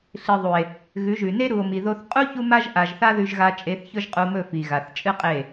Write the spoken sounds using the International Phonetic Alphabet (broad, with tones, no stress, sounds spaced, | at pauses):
ɬ ɨ˨ ðˤ u˨ e̯ | ɣ ʉ˨˦ ʒ ʉ˨ n e˦ ɾ u˨ o̯ m i˨ ð o˧ θ qʼ u˦ ç u˦ m a˦ ʒ ʔ a˨ ʒ θ a˦ ð ʉ˧ ʒ ɣ a˧ t͡ʃʼ e˧ θ ç ɵ˦ ʒ qʼ u˧ m ɵ˦˨ f i˨ ɣ a˨ θ t͡ʃʼ ɨ˦ qʼ e˦˨